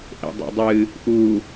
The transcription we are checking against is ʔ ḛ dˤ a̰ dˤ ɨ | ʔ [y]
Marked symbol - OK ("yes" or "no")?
no